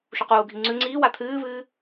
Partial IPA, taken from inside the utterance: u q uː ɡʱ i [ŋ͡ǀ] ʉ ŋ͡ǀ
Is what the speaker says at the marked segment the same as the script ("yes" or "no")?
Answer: yes